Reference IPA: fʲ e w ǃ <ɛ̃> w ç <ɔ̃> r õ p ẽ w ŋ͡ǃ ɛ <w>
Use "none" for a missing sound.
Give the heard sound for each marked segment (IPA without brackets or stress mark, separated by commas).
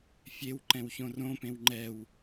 ɛ̃, õ, w